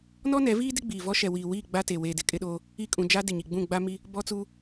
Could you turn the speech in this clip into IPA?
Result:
n ɔ˦ n ɛ˨˦ v iː˦ d ɪ˦ ɡ͡b iː˨ v ɔ˦ ʃ ɛ˨ w iː˨ w iː˦˨ ɡ͡b a˦ t e˨ w eː˨ d ɪ˨ kʼ ɪ˦ ɗ oː˦ | i˦˨ kʼ ũ˨ d͡ʒ a˦ d ɪ˨ ɲ i˨ ɡ͡b ũ˦˨ ɡ͡b a˦ m i˦ | b ɔ˦ t͡s uː˦

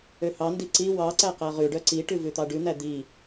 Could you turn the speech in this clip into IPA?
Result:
ø h ɑ n d i ǀ i w ɑ ǀ æ q æ ʁ ʉ ɖ œ ǀ i ʈ ʉ v ʉ t̪ ɑ ɖ ʉ n̪ æ d̪ i

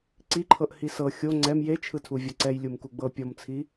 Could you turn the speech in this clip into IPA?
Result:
ǀ i ǃʰ ɤ ʔ h i s ɤ xʲ o ŋ͡ǀ ɛ m j e t͡ʃʰ ɯ tʰ u vʲ ɔ ǀ ɛ j lʲ u m k u ɡ͡b ɤ pʲ ɔ m t͡sʰ i

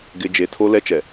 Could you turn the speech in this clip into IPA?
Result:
ɡ ɪ˨ d͡ʒ e˨ tʰ o˦ l ɛ˦ t͡ʃ ɛ˨

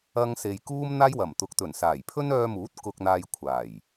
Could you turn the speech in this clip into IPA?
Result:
ɐ˧ ŋ s e˨ j k uː˥ m n̪ aː˥ j w ɐ˨˩ m t̪ ʊ˨ k̚ t̪ ɵ˨˩ n s aː˨˩ j pʰ ɵ˥ n œː˧ m uː˨˥ t̚ k ʊ˧ k̚ n̪ aː˧ j kʷʰ aː˨˩ j

